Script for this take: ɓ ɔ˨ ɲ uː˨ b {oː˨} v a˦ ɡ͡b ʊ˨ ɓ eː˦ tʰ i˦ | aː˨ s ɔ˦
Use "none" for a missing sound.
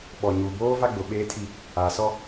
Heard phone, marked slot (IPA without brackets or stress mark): oː˦